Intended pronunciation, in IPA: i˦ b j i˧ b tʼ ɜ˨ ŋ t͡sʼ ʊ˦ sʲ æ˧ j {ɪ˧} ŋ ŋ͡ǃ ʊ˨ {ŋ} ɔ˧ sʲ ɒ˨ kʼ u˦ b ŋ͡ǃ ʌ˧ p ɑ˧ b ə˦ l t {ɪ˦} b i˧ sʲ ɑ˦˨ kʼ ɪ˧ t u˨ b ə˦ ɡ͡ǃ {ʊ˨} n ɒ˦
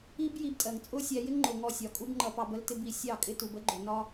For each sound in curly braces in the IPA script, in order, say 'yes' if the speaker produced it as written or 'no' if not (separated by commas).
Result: no, yes, yes, yes